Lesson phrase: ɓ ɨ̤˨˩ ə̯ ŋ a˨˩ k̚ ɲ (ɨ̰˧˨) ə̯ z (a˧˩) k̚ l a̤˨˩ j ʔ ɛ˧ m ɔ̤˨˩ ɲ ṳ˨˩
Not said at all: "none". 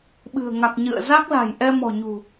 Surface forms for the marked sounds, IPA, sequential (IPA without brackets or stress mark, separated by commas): ɨ̰˧˨, a˦˥